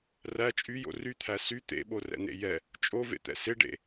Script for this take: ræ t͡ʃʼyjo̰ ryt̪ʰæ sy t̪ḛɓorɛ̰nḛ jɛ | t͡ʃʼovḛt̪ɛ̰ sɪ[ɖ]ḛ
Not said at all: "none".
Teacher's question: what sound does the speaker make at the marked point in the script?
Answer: ɖ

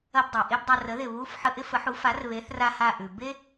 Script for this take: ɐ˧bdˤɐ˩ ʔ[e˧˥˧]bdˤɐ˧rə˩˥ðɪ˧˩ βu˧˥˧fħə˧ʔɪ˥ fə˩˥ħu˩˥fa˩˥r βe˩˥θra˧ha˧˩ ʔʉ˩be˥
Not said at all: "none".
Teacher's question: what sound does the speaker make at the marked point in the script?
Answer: e˧˥˧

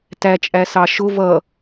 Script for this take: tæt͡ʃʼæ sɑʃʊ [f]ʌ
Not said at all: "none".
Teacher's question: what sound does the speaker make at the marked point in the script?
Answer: v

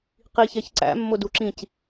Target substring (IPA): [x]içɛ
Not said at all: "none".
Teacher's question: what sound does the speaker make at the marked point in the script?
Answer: q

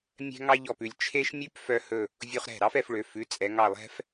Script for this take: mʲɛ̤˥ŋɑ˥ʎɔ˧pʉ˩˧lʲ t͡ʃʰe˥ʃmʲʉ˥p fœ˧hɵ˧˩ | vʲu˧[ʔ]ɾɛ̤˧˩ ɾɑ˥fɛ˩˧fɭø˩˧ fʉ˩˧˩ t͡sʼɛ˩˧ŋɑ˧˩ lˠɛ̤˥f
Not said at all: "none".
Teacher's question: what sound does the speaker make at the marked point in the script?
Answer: χ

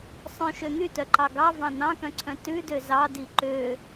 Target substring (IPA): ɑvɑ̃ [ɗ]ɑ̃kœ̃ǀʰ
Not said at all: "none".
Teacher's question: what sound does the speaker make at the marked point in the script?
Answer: n̪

